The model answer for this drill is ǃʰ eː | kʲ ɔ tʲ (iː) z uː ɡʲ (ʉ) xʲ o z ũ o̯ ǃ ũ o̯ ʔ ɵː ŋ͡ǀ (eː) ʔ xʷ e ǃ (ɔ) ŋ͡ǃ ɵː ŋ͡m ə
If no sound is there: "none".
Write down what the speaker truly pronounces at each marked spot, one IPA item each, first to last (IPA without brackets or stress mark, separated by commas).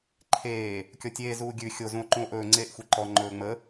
eː, ʉ, eː, ɔ